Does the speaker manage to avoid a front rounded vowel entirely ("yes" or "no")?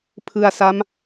yes